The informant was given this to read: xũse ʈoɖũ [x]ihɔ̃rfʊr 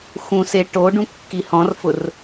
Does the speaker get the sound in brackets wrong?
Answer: yes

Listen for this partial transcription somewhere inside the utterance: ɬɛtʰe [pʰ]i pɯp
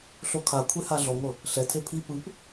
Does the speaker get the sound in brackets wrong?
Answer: no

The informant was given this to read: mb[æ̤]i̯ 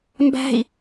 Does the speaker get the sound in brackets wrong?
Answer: no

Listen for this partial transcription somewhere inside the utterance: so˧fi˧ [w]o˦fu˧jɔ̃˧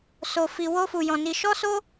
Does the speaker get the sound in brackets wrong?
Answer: no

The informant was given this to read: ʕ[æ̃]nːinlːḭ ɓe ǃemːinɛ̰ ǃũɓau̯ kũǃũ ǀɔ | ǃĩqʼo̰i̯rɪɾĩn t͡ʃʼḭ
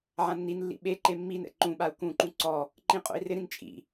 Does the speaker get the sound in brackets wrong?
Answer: yes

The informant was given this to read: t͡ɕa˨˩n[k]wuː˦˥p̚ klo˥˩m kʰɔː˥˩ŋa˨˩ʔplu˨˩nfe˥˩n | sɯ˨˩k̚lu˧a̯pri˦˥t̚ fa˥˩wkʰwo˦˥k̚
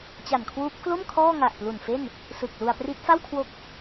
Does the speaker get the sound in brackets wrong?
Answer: yes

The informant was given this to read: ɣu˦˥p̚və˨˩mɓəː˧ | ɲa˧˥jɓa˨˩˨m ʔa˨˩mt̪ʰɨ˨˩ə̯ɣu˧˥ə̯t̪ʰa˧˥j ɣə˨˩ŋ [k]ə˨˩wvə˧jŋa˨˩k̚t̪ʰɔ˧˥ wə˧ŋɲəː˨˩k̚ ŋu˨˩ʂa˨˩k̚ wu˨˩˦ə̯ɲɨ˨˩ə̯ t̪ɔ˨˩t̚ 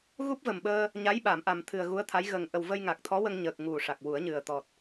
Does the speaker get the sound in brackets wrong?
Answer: yes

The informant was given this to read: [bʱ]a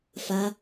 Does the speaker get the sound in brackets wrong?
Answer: yes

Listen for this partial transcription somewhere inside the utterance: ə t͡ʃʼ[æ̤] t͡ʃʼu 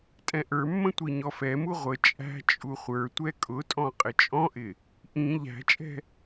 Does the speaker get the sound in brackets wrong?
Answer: no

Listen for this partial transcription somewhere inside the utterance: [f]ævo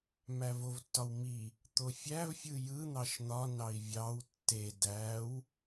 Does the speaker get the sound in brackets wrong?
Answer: yes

